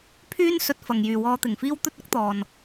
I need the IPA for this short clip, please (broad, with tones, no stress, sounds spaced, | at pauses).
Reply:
pʰ yː˥ n s ɵ˧ t̚ f ɐ˨ ŋ j yː˨ w ɔː˧ t̪ ɪ˨˩ ŋ f iː˥ w t̪ ɵ˥ t̚ ʊ˥ k̚ t̪ ɔː˨ n